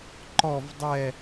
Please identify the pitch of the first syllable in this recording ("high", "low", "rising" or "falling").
falling